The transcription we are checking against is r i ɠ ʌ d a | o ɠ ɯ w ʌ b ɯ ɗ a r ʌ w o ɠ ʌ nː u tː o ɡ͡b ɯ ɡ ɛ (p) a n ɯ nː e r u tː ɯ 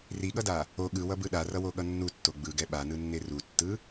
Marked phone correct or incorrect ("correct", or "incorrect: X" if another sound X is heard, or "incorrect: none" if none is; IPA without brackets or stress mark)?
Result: incorrect: ɓ